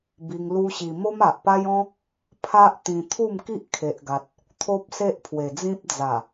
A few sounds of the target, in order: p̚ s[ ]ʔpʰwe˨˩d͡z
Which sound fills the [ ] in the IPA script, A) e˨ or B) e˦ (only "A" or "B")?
B